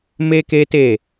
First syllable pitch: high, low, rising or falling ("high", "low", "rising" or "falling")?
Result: high